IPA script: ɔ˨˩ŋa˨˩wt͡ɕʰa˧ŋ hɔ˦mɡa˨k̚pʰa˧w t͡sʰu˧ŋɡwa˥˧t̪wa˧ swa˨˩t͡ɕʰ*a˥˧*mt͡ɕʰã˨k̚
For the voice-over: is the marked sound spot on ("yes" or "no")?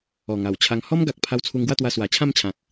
no